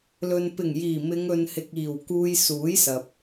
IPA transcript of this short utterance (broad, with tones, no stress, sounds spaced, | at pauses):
l ɵ˨ n p ɪ˨˩ ŋ j iː˨˩ m ɪ˨˧ ŋ ɵ˨ n h ɪ˨ k̚ iː˨˩ w k uː˧ j s uː˨˥ j s ɐ˨ p̚